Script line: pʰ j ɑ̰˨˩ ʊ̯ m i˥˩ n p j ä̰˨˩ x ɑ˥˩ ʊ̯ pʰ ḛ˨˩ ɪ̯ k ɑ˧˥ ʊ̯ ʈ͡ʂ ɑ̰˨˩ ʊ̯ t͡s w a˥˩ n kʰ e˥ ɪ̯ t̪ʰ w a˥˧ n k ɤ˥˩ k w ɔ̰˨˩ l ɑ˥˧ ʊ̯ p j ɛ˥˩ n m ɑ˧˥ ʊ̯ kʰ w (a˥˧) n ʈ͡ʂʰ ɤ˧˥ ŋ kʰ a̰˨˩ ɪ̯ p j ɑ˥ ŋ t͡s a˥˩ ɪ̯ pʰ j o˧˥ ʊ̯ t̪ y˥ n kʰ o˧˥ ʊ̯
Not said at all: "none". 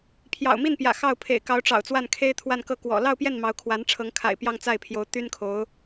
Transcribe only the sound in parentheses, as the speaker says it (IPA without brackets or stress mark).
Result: a˧˥